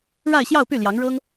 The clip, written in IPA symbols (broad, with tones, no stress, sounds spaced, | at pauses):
ɻ a˥˧ ɪ̯ ɕ j ɑ˥˧ ʊ̯ p y˥˩ l j ɑ˧˥ ŋ ɻ ɤ˥ ŋ